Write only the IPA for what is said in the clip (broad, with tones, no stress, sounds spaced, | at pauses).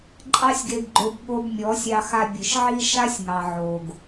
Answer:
ǃʼ ɑ˦ sʲ ɡ e˧ ɡ ɡ͡ǃ o˧ b ɠ o˧ b mʲ ɔ˨˦ sʲ ɑ˧ x a˧ bʲ ɨ˨ ʃ ʕ i˦ ʃ a˦ sʲ ŋ ɑ˨ ʕ o˨ ɡ